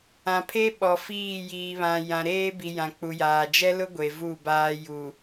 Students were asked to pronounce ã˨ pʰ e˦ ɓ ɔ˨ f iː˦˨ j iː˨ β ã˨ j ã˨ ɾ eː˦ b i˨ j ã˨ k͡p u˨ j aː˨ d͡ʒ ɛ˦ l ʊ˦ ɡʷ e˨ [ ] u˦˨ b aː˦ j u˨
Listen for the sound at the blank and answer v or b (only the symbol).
v